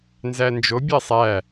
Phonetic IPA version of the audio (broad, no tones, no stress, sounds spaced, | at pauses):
n z æ n d͡ʒ o bʲ ɛ sˤ æ